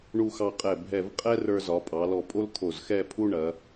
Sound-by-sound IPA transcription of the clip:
ɳ u˧ x ɑ˧ qʼ ɛ˧˩ bʱ ɛ˧˩ v qʼ ɛ˥ r ə˞˧ z ɒ˩˧ pʼ ɑ˩˧ l ɔ˧˩ pʼ o˥ l t̪ʰ o˧˩ z x ɛ˥˧ pʰ u˥ ɳ ɐ˩˧

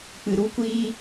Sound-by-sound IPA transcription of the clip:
k͡p ɨ˧ ɾ u˦ kʷ iː˦

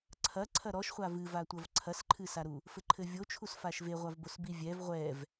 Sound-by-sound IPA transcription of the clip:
ǀʰ ɐ ǀʰ ɐ ɾ ɔ ʃ χʷ a v ɨ v a tʷ ɐ v ǀʰ ɐ s ǃʰ ɨ s a ɾ u | f ɘ ǃʰ ɘ vʲ o t͡ʃʰ u s f a ʃ v e ʁʷ a v b o s b i vʲ ɛ v ʁʷ ɛ v

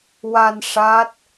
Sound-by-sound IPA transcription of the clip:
w a˧ n ʂ aː˦˥ t̚

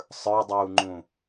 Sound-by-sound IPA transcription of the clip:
sˤ ə˞ dˤ uː ŋ͡ǃ ũː

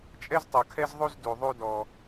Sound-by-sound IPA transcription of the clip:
t͡ʃʼ ɛ˦ z tˤ o˨ kʰ ɛ˦ z ðˤ u˦ z d u˨ ðˤ u˦ d ɔ˦

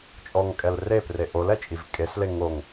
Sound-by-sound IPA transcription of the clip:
t͡ʃʼ ɔ ŋ kʼ ɛ l r e p r e ʔ o l ɛ t͡ʃʼ i v kʼ e s l e ŋ o ŋ

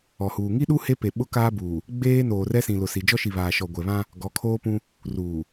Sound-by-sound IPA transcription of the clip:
ɔ˨ h uː˨ ŋ i˦ ɗ u˦ h e˦ p e˨ ɓ ʊ˦ k aː˦ b uː˨ | ɡ͡b eː˦ n oː˨ r ɛ˦ s ĩ˨ l ʊ˨ s i˨ d͡ʒ ɔ˦ ʃ i˨ β aː˨ ʃ ɔ˨ ɡʷ ɛ˨ β ã˦ | ɡ ɔ˨˦ kʰ oː˦ p ũ˦ | r uː˨

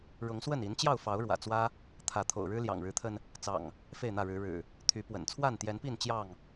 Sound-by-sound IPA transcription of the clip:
ɻ ʊ˨˦ ŋ s w ə˥˨ n i˨˦ n t͡ɕ j ɑ˥˨ ʊ̯ f ɑ˨˦ ʊ̯ ɻ w ä̰˨˩ t͡s w ä˦ | t̪ʰ ä˨˦ t̪ʰ o̰˨˩ ʊ̯ ɻ ɻ̩˦ l j ɑ̰˨˩ ŋ ɻ ɻ̩˨˦ t̪ʰ ə˧ n | t͡s ɑ̰˨˩ ŋ | f e˥˨ ɪ̯ n̪ ä˥˨ ɻ ɻ̩˨˦ ɻ ɻ̩˨˩ | t̪ʰ y˨˦ p w ə̰˨˩ n t͡sʰ w a˥˨ n t̪ j ɛ˨˦ n p i˥˨ n t͡ɕ j ɑ˥˨ ŋ

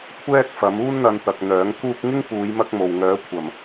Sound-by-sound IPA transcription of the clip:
kʷʰ ɛː˥ k̚ f ɐ˨˥ m uː˥ n n̪ ɐ˧ n t̪ ɐ˨ k̚ n̪ œː˨˥ ŋ k uː˥ k̚ ŋ ɪ˥ ŋ p uː˨˧ j m ɐ˥ k̚ m o˨ w ŋ œː˨˥ kʷʰ ɐ˨˩ m

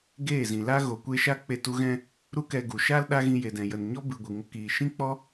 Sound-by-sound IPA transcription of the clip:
ɡ eː˦˨ z ĩ˨ l a˦ ɣ o˨ kʷ e˧ ʃ a˦ k͡p e˧ t u˧ ɣ ɛ̃˧ | ɾ u˦ k ɛ˧ ɡ u˨ ʃ a˦ l ɗ a˦ ɣ ĩ˧ j e˨ d ɛ̃˨ j ə˨ n ɲ ɔ˦ b ɨ˨ ɡʷ ɨ˨ ŋ ə˧ k iː˨ ʃ ĩ˦ k͡p ɔ˦

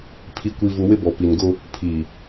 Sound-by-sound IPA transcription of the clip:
pʰ i˨ kʷ i˨ v u˨ w ɪ˦ b ɔ˨ p i˨ n ɡ ʊ˦ | pʰ i˨

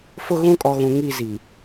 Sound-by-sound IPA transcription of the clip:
f ʊ˦ ɣ ũ˦ kʼ ɔ˨ ɣ ũ˨ ŋ i˦˨ z i˨

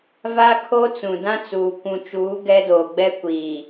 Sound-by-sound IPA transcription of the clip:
v a˦ kʰ o˦ t͡s ũ˨ d ã˦ t͡s uː˨ kʷ ũ˨ t͡ʃ uː˨˦ ɡ ɛ˦ d oː˨ ɡ͡b ɛ˦ kʷ iː˨

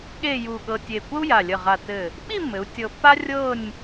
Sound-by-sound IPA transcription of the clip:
ɠ e˥˧ j u˧˩ ɠ ɤ˧ tʲ e˧˩ kʷ ə˥ u̯ j a˧˩ lʲ ə˧˩ ʁ a˧˩ t ɘ˧˩ | ɓ i˥˧ mː ɘ˩˧ u̯ tʲ ɤ˧ pː a˥ rʲ ɤ˥˧ nʲ

